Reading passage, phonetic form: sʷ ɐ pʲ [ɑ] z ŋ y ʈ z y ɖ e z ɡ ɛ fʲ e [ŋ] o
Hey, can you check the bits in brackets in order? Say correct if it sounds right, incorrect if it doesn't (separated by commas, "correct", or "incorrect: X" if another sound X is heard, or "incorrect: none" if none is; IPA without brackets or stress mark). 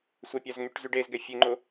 incorrect: a, incorrect: ŋ͡ǃ